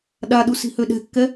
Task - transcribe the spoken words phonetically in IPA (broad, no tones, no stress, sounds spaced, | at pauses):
ɗ a ɗ u s i̤ h ø ɗ ɛ̤ kː ɛ